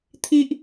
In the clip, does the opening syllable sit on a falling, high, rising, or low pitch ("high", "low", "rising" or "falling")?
high